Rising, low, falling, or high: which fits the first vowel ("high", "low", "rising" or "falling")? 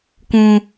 high